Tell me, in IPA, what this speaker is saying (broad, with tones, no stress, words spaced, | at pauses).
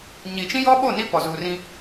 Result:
ɲi˨ t͡ʃĩ˦jɔ˦ɓo˦˨ ni˦ pɔ˨zuː˨rĩ˦